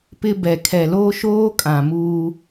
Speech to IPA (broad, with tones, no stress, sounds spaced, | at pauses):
p ɪ˦ b ɛ˨ kʰ ɛ˨ l oː˦ ʃ oː˦ kʼ ã˨ m uː˦